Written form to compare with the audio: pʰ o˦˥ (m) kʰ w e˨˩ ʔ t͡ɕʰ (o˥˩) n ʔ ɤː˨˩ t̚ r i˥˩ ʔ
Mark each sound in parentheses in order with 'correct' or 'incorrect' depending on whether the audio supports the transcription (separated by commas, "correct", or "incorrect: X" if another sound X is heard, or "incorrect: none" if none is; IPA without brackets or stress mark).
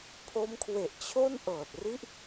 correct, correct